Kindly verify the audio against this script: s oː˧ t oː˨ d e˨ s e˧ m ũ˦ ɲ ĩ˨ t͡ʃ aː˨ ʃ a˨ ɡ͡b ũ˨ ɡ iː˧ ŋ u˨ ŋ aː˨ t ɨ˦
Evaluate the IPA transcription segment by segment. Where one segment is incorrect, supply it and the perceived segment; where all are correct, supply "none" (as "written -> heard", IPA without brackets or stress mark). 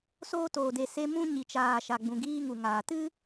ĩ˨ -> i˨